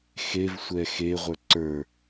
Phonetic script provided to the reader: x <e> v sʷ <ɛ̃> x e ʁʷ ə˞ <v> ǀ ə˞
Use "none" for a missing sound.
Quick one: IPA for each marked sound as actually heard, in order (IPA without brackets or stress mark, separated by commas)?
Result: e, ɛ, none